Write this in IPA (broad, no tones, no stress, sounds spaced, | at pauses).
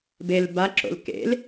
b e l b a ǁ o̰ l k ḛ l